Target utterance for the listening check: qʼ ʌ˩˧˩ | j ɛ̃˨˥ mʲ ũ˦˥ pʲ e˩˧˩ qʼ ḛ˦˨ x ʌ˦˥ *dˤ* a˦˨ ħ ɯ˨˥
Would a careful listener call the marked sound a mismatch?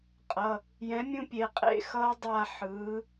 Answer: no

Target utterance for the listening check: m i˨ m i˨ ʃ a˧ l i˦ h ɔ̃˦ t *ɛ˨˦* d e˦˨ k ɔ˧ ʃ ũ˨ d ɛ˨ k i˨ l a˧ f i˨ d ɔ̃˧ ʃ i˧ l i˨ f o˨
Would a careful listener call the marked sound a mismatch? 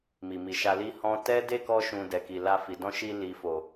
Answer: yes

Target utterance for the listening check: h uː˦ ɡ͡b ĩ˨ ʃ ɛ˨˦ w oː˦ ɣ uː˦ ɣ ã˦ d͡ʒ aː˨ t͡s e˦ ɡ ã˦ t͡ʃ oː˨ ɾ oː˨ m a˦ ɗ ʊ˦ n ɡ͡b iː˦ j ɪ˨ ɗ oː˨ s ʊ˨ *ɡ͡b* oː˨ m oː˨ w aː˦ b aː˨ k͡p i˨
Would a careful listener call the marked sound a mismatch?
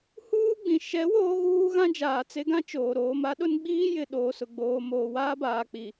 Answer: no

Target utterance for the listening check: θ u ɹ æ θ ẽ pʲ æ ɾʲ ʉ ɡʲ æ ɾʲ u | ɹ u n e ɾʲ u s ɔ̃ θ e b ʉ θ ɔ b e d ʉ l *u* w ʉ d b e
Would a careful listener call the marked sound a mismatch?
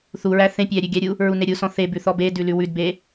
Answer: yes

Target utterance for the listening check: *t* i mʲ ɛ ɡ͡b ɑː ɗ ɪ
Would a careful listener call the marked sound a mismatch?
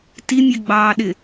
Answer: no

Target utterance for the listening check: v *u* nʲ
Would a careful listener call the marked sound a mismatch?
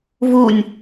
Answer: no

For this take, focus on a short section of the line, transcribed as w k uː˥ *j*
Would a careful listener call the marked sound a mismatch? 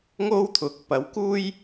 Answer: no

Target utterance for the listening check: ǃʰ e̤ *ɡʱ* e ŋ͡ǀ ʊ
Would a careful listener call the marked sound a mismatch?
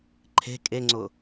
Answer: yes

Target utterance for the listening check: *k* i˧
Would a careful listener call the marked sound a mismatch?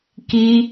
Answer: no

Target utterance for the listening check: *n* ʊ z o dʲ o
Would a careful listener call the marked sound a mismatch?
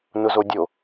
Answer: no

